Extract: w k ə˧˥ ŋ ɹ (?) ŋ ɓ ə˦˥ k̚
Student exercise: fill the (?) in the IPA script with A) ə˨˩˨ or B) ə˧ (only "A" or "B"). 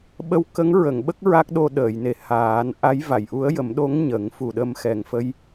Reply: A